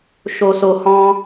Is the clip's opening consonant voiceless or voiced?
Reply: voiceless